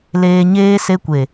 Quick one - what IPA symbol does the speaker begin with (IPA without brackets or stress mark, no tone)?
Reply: l